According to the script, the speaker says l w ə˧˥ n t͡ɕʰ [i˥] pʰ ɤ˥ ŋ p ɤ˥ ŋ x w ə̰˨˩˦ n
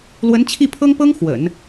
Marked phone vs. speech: incorrect: i˥˩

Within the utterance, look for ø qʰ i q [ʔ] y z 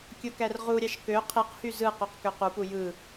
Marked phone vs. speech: incorrect: h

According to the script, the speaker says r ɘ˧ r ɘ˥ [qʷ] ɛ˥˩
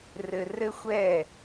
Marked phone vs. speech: incorrect: xʷ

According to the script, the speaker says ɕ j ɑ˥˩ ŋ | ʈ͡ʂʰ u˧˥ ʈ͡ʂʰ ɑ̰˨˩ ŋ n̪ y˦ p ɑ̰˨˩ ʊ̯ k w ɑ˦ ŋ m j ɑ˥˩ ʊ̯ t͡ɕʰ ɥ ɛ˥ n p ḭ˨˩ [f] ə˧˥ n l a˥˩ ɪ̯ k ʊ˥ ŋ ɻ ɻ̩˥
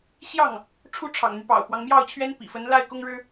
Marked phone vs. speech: correct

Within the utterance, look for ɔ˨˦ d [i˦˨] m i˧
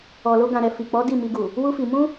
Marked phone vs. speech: correct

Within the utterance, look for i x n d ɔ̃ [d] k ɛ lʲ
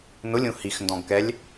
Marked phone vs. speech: incorrect: ɡ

